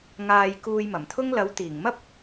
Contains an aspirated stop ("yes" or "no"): yes